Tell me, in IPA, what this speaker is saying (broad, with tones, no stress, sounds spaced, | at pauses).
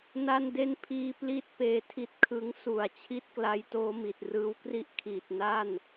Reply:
n a˥˩ n d e˥˩ n pʰ iː˦˥ p l i˥˩ t̚ p eː˧ tʰ i˦˥ t̚ kʰ ɯ˦˥ ŋ s u˨˩ a̯ t͡ɕʰ i˥˩ t̚ k l a˦˥ j t oː˦˥ m i˨˩ t̚ r ɯː˦˥ w k r i˥˩ ʔ kʰ iː˨˩ t̚ n a˥˩ n